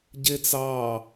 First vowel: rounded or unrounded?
unrounded